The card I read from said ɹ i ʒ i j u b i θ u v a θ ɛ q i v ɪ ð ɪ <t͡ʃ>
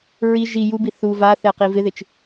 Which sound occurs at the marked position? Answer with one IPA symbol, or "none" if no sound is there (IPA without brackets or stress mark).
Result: t͡ʃ